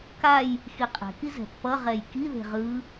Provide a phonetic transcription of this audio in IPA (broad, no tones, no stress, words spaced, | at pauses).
kaj | xiqʼɛ̤ki zɛ̤pːʌʁɛj kiðe̤ ʁɯ